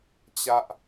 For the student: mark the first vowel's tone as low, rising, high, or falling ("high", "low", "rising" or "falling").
falling